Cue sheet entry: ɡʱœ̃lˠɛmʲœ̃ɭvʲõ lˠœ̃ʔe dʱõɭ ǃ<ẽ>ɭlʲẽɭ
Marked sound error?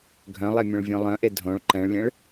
yes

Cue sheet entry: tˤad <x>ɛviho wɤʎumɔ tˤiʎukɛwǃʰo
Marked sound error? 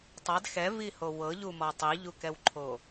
no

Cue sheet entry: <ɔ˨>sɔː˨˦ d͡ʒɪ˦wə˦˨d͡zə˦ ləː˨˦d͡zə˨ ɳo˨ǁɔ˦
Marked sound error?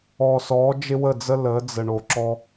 yes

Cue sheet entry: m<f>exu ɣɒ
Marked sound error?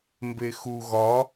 yes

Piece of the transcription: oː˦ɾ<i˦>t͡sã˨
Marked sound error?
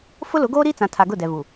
no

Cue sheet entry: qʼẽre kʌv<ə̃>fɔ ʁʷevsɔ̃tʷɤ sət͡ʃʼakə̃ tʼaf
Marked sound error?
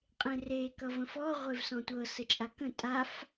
no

